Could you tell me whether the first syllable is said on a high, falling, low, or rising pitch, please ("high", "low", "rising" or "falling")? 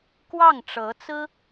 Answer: falling